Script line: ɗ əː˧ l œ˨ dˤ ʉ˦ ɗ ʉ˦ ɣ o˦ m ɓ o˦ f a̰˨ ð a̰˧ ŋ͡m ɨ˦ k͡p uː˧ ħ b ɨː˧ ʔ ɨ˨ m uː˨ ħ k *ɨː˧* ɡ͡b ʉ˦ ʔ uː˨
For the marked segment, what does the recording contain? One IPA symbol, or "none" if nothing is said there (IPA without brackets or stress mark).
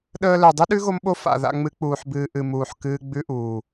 ɨː˧